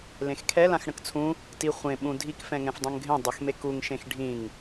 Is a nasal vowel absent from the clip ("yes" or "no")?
no